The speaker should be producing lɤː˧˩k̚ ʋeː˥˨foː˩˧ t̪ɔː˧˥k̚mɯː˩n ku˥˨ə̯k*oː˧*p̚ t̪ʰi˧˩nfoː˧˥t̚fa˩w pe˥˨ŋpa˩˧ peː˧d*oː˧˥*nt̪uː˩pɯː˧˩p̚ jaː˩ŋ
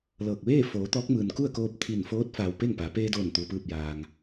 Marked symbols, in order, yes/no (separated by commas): yes, no